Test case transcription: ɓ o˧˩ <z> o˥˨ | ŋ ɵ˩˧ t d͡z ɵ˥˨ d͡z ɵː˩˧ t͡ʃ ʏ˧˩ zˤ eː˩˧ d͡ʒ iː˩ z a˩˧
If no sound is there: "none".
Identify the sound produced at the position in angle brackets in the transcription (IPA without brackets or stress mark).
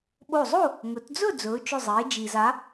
zˤ